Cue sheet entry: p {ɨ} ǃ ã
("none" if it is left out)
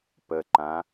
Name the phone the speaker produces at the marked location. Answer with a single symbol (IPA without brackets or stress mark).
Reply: ə